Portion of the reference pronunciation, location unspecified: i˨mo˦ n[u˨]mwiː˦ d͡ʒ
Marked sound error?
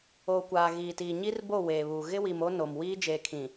yes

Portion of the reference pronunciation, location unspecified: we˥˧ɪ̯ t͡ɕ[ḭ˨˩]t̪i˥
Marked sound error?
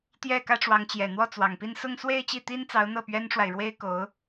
yes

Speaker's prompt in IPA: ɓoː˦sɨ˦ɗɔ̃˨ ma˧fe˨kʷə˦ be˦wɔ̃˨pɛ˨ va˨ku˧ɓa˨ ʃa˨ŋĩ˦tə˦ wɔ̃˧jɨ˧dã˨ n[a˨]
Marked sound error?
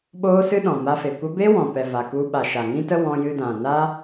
yes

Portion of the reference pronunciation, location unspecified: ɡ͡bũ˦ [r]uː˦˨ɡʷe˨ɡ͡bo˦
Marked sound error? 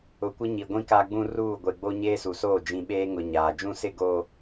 no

